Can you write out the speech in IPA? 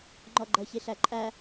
ŋ͡ǃ ɔ ɡ͡ǃ ʌ ç i ɬ æ ǃʼ æ

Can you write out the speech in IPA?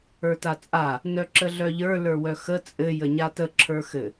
ə˞ t a t͡sʼ a | n œ ǁ ə ɮ œ ʎ ə˞ l ə˞ w œ x ə t͡sʼ ɘ j ə ɲ a t ə ǁʰ ə˞ x ɘ

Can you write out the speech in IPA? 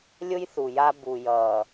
lʲ ʊ˦ j θ u˨ j a˦ b u˨ j ʌː˨

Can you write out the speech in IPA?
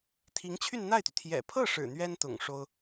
t̪ʰ i˧˥ ŋ t͡ɕʰ y˥˧ n n̪ a˥˩ ɪ̯ t̪ y˩ t̪ʰ j ɛ̰˨˩ pʰ ɤ˥˩ ʂ ɻ̩˨˩ n̪ ɥ ɛ˥ n t̪ ʊ̰˨˩ ŋ ʂ o˥ ʊ̯

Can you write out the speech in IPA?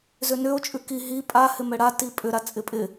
z ʏ n ʏ o̯ t͡ʃʼ ʉ k i ɦ i pʼ a h ɪ m ɛ ɽ a t i pʼ ʏ ɾ a t͡sʼ ɪ pʼ ɪ

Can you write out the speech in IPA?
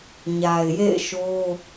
ɲ a˨ ɪ̯ j ḛ˦˨ ɪ̯ ʃ o˦

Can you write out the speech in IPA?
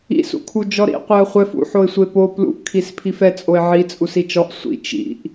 ḭ s ṵ kʰ u d͡ʒ ɔ ɾ ḭ qʷ e ə̯ χʷ ɛ f ṵ ħ o ɪ̯ sʷ e p o p l ṵ ʔ kʰ i s pʰ i f ɛ t͡sʼ o ɪ̯ ʕ i t͡sʼ u s i t͡ʃ ɔ ʔ sʷ ḭ t͡ʃ ḭ ʔ

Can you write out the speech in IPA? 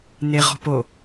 n̪ e ʁ ɔ̤ p o

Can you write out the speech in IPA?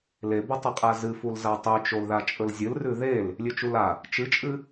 l e b ɐ tˤ ɐ qʼ a z ɨ f u l z a tˤ ʉ t͡ʃ o l ð a t͡ʃʼ ɵ l zʲ ɨ l r ʉ ð e l | lʲ ʉ t͡ʃ u l a | t͡ʃ ɨ t͡ʃʼ ɨ

